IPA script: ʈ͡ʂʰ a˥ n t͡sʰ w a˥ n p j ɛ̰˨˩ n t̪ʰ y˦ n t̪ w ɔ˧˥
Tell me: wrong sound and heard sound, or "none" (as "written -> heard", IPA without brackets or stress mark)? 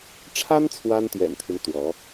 p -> t̪